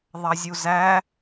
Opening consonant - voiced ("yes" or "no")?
yes